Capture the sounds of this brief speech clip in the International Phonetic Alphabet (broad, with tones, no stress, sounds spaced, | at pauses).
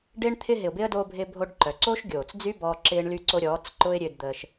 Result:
ɖ ɪː˧ ɳ t̪ʰ ɪ˧ ɦ ɪ˨ ʊ̯ b ɪ˦ ə̯ d oː˧ bʱ ɪ˧ bʱ o˧ ɖ ǃ œ˨ ǀ oː˦ ʃ ɡʲ oː˨ t͡s d͡z y˦ b ɔː˧ ǁ ɪː˦ ɳ l y˦ ǀ o˦ ɾʲ ɔː˨˦ t͡s ǃ ʊ˦ ɪ̯ ɾʲ ø˧ d d̪ əː˧ ʃ